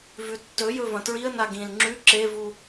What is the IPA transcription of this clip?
vʉtːɵjɵ vɐ̃tɹiə̯na ɡĩl ŋ͡ǁʉ ǁevu

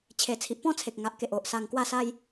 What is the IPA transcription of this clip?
t͡ɕʰe˨˩t͡sʰi˨ʔpɔ̃˥˧t͡sʰe˨k̚ ŋa˨ʔ ke˨ʔo˨ʔ sa˧ŋkwa˥˧sa˦j

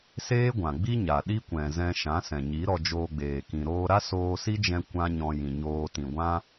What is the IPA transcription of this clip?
seː˦ɡʷã˨ɡ͡bi˦ ɲa˨ɗi˦kʷɛ̃˨ zɛ̃˧ʃã˨˦sɛ̃˨ɲi˨˦ ɾɔ˧d͡ʒoː˧ɡ͡beː˨kĩ˨ ɾoː˧ɾa˦ soː˧ si˦d͡ʒɛ̃˧ kʷã˦ɲɔ̃˧jĩ˨ɲoː˧ tĩ˨ɡʷã˦

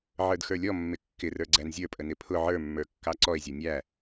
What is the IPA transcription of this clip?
ʕə˞dxə˞lʲɔmːɪ kːɪrə˞ ɡ͡ǀænzʲə˞pʼə nɪpʰʊ ʕə˞mːə˞kːɑ ǀɔe̯zʲɔ nʲæ

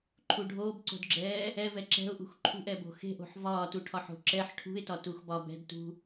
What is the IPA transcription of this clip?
ǃʰuɖʱoːbǀo̤dɡ͡ǁɛː | ɛvɛ ǁɛ̤ʊ̯ʔṳx ǃʰṳʔ ɛbo̤xe̤ʔo̤ħ vɒːtuʈʰɒħo̤ ǁɛħ ʈʰṳɪ̯tɒtux bɒbɛ̤dtṳ

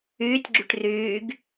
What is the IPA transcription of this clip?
yːtʲɡ͡ǁyʈ ryːɡ

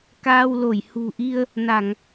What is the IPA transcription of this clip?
kaː˧wlo˧˩j hṳ˨˩ʔi˧ə̯ | na˧˩˨ŋ

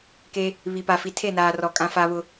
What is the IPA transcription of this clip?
ke˦ | βi˨pa˨fi˨ tʰe˦˨naː˨rɔ˨ kʼã˦fa˦βʊ˦

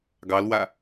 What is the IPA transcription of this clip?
ɡɑlwa

